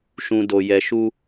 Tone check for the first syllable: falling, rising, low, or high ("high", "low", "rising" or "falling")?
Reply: low